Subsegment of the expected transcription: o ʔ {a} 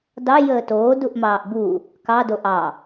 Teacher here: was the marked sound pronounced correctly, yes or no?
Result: no